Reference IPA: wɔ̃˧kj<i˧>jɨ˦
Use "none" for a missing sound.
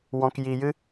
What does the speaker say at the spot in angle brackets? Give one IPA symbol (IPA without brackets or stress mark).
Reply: i˧